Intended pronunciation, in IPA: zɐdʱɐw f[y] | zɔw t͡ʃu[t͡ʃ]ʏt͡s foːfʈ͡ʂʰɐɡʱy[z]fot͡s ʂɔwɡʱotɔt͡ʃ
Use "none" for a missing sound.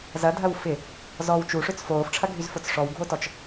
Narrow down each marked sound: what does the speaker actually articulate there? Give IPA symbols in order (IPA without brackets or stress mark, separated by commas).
ɪ, ʂ, z